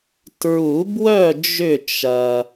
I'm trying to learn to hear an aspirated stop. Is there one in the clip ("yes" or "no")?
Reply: no